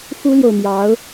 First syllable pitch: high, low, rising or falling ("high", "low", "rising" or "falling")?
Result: high